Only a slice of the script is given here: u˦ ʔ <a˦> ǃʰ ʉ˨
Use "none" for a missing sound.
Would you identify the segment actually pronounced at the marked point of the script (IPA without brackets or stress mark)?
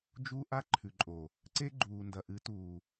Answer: a˦